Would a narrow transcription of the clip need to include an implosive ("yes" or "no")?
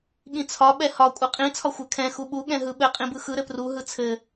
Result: yes